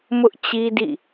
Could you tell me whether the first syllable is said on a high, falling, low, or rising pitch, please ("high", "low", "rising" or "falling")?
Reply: high